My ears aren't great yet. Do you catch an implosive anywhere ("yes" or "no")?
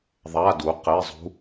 no